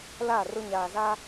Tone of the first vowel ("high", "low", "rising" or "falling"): falling